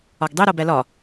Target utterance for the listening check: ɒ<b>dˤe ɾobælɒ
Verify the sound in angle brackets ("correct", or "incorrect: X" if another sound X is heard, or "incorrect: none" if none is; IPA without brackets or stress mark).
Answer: incorrect: ɡ